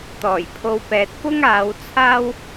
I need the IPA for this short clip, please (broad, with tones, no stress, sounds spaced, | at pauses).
t̪ ɔː˨˩ j pʰ o˧ w p ɛː˨ t̚ p ʊ˥ ŋ aː˨˧ w t͡sʰ aː˥ w